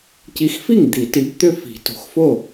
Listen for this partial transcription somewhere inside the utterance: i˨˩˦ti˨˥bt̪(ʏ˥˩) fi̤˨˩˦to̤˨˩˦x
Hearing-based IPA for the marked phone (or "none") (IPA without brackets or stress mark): ʏ˥˧